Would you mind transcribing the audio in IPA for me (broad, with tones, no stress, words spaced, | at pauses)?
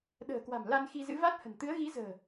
ɗə̤ː˨˩kwa̤˨˩m la˧nxi˧zɨ̰˧˥va˦˥t̚ hə̤˨˩nt̪ɨ˨˦ə̯ ɣi˨˦zə̤ː˨˩